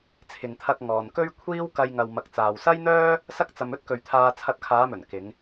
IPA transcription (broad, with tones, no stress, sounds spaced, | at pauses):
t͡sʰ ɪ˨ ŋ t̪ʰ ɐ˧ k̚ ŋ ɔː˨ n k ɵ˥ ɥ kʷʰ iː˥ w k ɐ˧ j ŋ ɐ˨ w m ɐ˨ k̚ t͡s aː˨ w s ɐ˥ j n̪ œː˥ | s ɐ˥ k̚ t͡s ɐ˧ m ɵ˥ t̚ k ɵ˨ ɥ t̪ʰ aː˧ t͡sʰ ɐ˧ t̚ kʰ aː˨˧ m ɵ˨˩ n k ɪ˨˧ ŋ